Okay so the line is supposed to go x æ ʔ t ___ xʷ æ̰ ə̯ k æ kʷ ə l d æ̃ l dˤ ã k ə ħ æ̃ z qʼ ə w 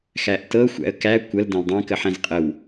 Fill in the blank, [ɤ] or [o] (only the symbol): ɤ